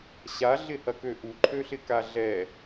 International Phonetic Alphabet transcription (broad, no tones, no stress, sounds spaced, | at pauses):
ɕ a ɮ ɪ h ɐ k ø ʔ u ǃʰ ø ɬ ɪ k a ɮ ɛ